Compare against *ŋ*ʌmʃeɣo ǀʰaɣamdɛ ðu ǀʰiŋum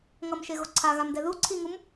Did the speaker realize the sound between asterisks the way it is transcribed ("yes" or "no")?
yes